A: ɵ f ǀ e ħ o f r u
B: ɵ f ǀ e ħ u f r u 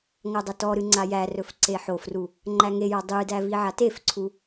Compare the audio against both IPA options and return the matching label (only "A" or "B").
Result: A